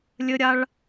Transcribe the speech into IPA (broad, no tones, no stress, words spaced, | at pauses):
lʲɘɾʲaɭ